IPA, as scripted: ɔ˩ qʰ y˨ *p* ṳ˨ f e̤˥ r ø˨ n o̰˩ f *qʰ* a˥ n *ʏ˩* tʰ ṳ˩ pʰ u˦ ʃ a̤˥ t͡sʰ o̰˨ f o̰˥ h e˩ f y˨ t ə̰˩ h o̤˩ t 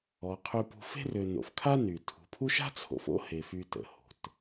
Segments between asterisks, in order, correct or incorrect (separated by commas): correct, incorrect, incorrect